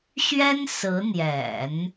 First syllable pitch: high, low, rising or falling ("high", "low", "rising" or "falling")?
high